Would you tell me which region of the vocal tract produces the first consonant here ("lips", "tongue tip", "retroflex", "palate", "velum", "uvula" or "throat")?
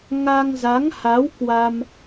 velum